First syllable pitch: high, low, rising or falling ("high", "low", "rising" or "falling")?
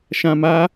low